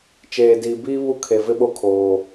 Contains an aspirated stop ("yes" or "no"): yes